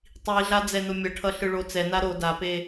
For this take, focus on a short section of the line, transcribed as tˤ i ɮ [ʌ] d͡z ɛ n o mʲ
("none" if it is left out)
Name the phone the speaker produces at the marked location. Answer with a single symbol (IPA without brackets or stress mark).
a